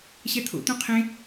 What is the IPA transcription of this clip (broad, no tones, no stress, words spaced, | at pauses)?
ɕɛt̪ʰo̰t̪ũ qʰẽ